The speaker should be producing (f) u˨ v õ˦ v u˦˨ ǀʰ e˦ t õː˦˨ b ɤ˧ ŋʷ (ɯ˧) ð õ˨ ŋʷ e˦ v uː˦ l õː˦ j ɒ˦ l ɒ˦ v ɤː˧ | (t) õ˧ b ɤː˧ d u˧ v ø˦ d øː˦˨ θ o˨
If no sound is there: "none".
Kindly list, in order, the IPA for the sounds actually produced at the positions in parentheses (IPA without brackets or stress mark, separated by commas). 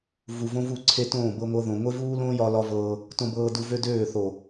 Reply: v, ɤ˧, t